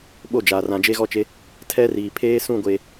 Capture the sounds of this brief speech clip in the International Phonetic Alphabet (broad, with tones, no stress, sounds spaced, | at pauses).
ɓ o˦˨ d͡ʒ aː˨ r ã˨ d͡ʒ e˦ ɣ ɔ˦ t͡ʃ e˦ | tʰ ɛ˦ r iː˨ pʰ eː˦ s ũ˦˨ ɡʷ eː˨